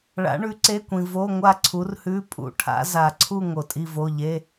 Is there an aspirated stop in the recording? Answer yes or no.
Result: yes